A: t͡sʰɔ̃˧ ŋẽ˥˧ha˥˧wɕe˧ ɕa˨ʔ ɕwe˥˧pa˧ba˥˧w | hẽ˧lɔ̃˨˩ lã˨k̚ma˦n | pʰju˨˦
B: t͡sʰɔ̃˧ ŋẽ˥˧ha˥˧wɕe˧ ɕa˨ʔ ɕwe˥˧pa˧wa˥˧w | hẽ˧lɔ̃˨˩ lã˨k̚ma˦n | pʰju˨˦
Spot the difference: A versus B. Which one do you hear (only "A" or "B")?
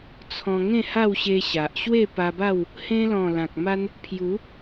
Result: A